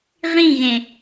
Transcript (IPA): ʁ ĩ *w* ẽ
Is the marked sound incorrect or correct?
incorrect: ɣ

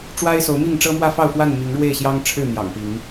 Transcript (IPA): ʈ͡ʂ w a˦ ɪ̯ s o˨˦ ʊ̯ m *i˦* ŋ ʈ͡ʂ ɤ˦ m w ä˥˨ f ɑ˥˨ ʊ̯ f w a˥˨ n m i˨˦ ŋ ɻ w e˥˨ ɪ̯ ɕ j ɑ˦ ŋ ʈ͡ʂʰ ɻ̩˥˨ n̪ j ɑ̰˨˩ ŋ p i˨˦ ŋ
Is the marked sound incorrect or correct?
incorrect: i˥˨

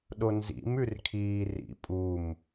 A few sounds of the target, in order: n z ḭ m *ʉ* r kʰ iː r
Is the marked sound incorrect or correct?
correct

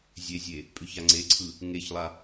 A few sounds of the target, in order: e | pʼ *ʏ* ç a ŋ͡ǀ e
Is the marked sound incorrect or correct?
correct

